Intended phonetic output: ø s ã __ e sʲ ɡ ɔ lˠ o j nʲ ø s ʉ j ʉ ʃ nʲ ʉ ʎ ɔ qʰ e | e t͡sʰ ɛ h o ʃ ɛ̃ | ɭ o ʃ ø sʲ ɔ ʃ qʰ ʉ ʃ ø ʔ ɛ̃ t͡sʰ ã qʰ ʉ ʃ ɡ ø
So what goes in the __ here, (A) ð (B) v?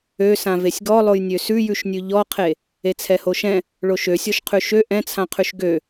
B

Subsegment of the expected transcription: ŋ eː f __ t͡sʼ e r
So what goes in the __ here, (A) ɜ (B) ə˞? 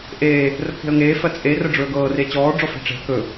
A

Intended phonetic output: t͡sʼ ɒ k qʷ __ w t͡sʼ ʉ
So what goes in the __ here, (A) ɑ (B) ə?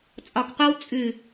A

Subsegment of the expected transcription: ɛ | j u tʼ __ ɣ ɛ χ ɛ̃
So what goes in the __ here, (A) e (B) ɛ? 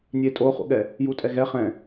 B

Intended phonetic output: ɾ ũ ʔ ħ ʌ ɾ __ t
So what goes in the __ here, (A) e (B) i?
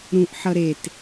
A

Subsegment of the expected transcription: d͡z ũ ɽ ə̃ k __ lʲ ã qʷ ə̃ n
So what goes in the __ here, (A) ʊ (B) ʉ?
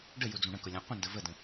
A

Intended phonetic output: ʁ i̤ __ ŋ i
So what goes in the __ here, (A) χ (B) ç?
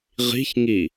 B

